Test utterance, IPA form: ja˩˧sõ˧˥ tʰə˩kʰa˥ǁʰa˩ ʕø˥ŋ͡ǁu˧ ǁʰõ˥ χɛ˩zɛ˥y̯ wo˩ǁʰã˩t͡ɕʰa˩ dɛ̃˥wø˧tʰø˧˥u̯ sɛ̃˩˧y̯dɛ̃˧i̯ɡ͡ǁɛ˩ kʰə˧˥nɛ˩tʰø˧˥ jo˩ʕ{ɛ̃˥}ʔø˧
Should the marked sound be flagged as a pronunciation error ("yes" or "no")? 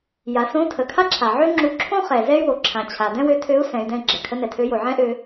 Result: no